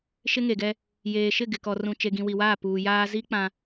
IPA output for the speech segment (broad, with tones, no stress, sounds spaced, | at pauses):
ʃ ɪ˦ ŋ e˨ ɡ ɛ˦ | j eː˨ ʃ ɪ˦˨ ɡ ɪ˨ k ɔ˨ r ũ˨ t͡ʃ e˨ ɡ ĩ˨ w i˨ w aː˦˨ p uː˨ j aː˦ z i˦ k͡p ã˦